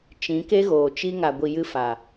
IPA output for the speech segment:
t͡ʃ ĩ˨˦ k e˦ ɣ oː˨ t͡ʃ i˧ ŋ a˨ ɡʷ i˨ j ɨ˧ f a˨

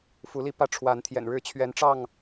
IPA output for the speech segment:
f u˨˦ l i˦ p ä˦ ʈ͡ʂʰ w a˨˦ n t̪ʰ j ɛ̰˨˩ n ɻ ɻ̩˦ t͡ɕʰ ɥ ɛ˨˦ n ʈ͡ʂ ɑ˥˨ ŋ

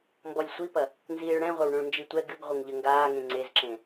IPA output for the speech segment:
m b ɔ lʲ sʷ i p ɐ | n z iː ɭ ɽ ɛ̃ ʁʷ ɐ w ɳ õ ɭ n d͡ʒ i tʷ ɛ ɡ ɨ ɡ ʁʷ ɘ ŋ ʎ ɘ ŋ ɡ aː ŋ ẽ ŋ͡ǀ e z ǁ ẽ

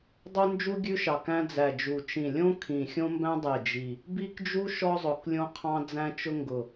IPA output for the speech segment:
dˤ o˦ n d͡ʒ u˦ ɡʲ ʉ˦ ʃ ɑ˨˩ k æ̃˦ d͡z æ˨˩ d͡ʒ u˨˩ t͡ʃ ĩ˨˩ lʲ õ˦ kʰ ĩ˨˩ xʲ õ˦ m b æ̃˦ dˤ e˨˩ d͡ʒ i˨˩ | b i˦ k d͡ʒ u˦ ʃ ɔ˦ zˤ ʊ˨˩ k lʲ õ˦ qʰ ɑ̃˦ d͡z æ̃˦ t͡ʃ ʊ˦ ŋ ɡ ʊ˨˩

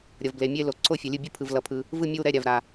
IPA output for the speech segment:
ɾʲ ʌ˩ v b l e˩ mʲ e˦˨ l o˩ ǀʰ o˦˨ fʲ ʌ˩ lʲ ɯ˦˨ bʲ ɯ˦˨ pʰ ɯ˩ v l ʌ˩ pʰ ɯ˩ | v ɯ˦˨ mʲ ɯ˦˨ w ɾ ɛ˦˨ ɾʲ a˩ v ɾ a˩

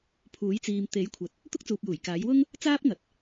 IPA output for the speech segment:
pʰ uː˨˥ j t͡s iː˨ m t̪ e˨˥ j kʷʰ ɐ˨ t̚ | t̪ ʊ˥ k̚ t͡s uː˨ p̚ j uː˨˩ j k aː˨˥ j w ʊ˥ ŋ | t͡s aː˥ p̚ ŋ ɐ˨ t̚

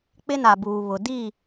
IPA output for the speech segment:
k͡p ɪ˦ n a˨ b uː˨ β ʊ˨ d i˦˨

